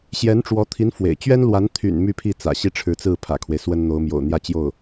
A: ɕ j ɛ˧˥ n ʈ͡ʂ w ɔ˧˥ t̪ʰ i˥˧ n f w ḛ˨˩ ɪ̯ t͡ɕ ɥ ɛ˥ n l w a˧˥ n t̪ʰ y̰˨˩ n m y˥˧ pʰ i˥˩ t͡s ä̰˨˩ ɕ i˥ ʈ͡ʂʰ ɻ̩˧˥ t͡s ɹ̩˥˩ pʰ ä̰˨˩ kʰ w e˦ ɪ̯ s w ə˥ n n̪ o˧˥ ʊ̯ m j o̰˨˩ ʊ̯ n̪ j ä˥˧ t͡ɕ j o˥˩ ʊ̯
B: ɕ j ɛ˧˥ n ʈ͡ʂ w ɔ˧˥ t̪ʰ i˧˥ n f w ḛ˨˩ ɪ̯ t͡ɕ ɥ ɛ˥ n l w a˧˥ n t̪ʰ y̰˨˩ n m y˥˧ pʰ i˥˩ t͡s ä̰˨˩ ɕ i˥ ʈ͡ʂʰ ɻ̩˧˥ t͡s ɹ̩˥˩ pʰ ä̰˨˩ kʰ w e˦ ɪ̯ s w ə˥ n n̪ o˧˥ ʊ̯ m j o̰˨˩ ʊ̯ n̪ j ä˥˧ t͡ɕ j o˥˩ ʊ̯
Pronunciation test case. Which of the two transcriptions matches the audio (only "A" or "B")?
B